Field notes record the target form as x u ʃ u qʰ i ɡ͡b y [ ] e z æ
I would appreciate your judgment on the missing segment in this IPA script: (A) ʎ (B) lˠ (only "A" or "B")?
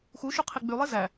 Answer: B